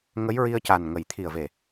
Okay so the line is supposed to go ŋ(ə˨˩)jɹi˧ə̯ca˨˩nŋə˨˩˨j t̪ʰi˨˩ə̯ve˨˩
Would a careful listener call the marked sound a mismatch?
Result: yes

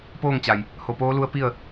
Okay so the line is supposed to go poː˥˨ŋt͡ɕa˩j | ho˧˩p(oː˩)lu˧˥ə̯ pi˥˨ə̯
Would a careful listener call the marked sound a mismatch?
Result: yes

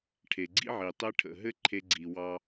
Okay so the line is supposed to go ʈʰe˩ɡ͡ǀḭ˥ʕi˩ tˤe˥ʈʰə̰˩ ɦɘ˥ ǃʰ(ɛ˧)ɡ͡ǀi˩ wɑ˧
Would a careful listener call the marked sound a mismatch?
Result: yes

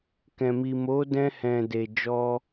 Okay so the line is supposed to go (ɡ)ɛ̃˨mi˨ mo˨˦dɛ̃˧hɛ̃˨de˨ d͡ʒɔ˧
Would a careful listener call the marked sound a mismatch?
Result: yes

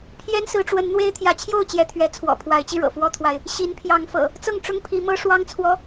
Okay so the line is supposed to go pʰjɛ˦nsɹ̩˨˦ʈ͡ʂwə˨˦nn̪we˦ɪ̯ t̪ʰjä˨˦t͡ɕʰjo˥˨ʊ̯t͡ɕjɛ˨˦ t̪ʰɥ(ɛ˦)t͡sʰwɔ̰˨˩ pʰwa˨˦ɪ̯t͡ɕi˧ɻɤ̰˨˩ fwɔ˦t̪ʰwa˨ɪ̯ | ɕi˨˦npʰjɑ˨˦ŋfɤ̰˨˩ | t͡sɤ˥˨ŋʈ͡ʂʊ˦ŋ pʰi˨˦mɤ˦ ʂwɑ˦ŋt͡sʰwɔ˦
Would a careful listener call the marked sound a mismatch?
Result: yes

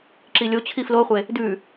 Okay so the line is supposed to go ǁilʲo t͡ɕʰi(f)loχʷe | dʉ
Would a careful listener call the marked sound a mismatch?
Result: no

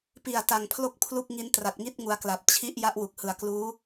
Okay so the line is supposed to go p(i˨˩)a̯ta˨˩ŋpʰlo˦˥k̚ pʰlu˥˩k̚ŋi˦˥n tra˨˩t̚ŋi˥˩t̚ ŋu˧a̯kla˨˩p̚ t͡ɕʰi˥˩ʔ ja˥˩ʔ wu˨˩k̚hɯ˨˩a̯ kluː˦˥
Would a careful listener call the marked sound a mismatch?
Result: no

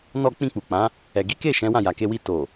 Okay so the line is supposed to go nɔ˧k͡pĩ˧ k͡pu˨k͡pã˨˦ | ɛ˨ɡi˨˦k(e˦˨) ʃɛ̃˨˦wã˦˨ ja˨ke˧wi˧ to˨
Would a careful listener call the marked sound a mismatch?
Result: no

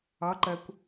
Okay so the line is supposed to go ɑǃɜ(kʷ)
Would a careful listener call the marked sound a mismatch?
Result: no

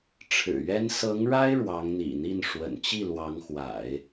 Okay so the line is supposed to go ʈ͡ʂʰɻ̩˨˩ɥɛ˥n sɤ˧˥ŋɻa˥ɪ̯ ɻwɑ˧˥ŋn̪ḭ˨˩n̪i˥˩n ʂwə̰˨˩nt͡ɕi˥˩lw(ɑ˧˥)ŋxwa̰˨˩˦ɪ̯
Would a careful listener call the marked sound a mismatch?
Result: no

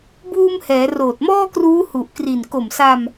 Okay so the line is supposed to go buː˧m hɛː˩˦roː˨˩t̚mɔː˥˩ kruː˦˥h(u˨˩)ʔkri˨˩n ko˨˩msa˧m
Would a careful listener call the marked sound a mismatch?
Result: no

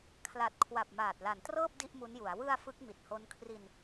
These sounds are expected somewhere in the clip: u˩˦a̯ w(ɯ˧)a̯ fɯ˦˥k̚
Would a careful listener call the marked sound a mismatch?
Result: no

